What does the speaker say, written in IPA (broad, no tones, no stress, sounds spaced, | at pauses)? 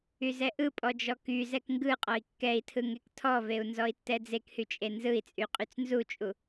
y z ɛ ʔ ɯ pʼ ɔ d͡ʒ ɔ k y z ɛ k ŋ ɡ ɯ qʼ ɔ i̯ kː ɛ i̯ tʰ ɯ ŋ e k tʰ ɔ v e u̯ n z ɔ i̯ tː ɛ d͡z e k h y t͡ʃʼ e n z ɯ i̯ t͡sʼ y qʼ y t͡s n z u t͡ʃʼ u